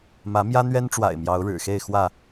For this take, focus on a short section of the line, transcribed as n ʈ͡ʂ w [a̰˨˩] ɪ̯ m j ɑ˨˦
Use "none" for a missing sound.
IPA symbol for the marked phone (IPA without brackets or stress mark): a̰˨˩